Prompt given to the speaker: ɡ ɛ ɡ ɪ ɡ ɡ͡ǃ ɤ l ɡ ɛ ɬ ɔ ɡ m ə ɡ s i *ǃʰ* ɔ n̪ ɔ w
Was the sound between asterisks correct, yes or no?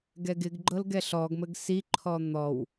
yes